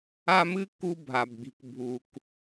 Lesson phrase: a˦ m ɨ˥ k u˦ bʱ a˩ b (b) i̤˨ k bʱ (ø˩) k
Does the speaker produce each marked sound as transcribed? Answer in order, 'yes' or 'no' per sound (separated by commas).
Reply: no, no